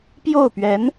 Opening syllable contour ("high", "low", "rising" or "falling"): falling